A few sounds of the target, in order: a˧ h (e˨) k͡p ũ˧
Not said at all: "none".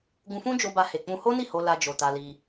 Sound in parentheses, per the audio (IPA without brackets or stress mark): e˨